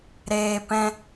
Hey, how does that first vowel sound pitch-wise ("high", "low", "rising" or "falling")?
low